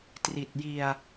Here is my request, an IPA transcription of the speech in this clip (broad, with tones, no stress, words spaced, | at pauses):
tri˨˩t̚ji˧a̯